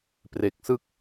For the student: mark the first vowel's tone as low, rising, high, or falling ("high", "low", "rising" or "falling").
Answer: low